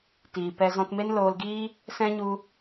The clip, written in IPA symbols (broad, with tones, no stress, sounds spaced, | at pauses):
t iː˨ p ɛ˧ z ɔ̃˧ t m e˦ n l oː˧ l ɡ iː˦ | s ɛ̃˦ ɲ u˧